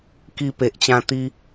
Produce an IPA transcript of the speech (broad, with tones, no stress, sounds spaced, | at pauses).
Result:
k i˧ p e˨ ʔ t͡ɕ ã˧ t̪ i˦